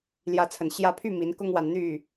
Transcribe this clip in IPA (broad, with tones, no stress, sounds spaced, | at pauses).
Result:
l j ä˨˦ t͡sʰ ə˨˩ n ɕ j ä˨˦ pʰ y˥˨ m i˨˦ n k ʊ˦ ŋ w a˨ n n̪ y˥˨